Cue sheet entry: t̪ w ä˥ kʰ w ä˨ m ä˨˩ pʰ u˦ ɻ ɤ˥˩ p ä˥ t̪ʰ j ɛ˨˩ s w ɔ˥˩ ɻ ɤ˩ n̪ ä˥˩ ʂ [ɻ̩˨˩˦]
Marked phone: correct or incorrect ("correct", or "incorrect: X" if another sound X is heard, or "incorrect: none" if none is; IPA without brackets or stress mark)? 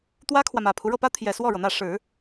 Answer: correct